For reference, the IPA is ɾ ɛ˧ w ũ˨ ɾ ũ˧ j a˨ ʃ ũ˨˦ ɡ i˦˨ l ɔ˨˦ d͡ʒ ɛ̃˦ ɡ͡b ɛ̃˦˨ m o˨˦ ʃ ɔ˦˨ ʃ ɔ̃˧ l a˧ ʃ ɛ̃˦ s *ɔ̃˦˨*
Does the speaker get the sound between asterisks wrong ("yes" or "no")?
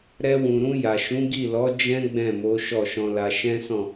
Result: no